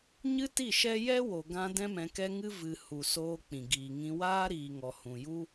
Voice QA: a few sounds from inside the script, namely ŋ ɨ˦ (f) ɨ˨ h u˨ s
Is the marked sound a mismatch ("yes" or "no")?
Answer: yes